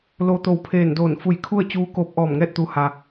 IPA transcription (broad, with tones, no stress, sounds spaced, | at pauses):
l oː˧ t̪ o˧˩ w pʰ eː˧˩ n d oː˧˩ n f u˧˩ j kʰ u˥˨ ə̯ t͡ɕ uː˧ k oː˧ p̚ ʔ ɔː˧˩ m ŋ ɛː˥˨ t̚ t̪ u˩˧ h a˩